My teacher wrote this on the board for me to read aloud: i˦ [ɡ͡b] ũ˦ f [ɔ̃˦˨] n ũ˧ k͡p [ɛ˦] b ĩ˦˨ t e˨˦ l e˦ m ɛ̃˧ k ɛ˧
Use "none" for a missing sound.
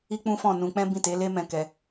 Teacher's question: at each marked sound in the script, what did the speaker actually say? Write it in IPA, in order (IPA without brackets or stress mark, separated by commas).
k͡p, ɔ̃˦˨, ɛ̃˦